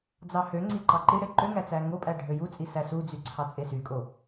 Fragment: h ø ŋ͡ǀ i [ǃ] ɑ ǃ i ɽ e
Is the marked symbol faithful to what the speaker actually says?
yes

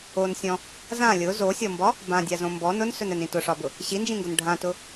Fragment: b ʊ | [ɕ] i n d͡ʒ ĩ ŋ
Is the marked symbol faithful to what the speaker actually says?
yes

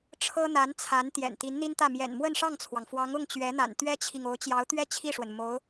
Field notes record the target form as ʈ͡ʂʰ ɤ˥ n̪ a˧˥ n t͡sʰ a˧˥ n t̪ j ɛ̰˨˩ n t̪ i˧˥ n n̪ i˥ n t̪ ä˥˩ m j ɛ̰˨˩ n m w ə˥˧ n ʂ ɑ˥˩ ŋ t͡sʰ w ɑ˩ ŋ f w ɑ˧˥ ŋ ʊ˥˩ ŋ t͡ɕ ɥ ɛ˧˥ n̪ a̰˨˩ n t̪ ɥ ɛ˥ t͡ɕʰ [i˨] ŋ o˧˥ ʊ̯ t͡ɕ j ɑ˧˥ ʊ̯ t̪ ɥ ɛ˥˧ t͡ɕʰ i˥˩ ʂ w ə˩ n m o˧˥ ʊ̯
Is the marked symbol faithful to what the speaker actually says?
yes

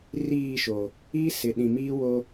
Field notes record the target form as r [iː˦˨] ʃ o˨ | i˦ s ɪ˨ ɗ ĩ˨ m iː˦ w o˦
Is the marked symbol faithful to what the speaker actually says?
yes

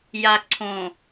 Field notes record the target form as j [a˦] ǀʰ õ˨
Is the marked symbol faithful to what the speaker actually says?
no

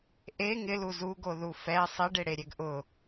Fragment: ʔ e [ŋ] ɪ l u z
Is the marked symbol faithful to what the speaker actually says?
yes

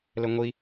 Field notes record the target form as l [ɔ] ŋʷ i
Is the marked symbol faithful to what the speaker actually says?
no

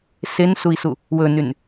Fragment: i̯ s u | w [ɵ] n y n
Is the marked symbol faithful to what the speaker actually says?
yes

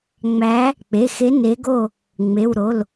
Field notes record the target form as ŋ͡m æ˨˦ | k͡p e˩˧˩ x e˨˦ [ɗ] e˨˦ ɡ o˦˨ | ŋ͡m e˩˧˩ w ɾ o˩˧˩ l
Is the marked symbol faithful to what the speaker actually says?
no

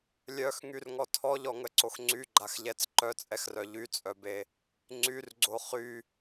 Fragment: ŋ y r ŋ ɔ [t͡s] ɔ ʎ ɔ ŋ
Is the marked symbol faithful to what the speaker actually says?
no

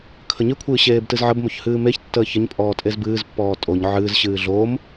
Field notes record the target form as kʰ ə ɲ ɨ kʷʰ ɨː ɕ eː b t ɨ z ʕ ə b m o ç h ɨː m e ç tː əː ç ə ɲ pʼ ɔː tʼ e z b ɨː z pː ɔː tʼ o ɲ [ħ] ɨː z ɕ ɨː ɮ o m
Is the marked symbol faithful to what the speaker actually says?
no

